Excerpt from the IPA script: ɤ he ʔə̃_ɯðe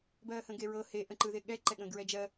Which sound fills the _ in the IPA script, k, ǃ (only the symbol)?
ǃ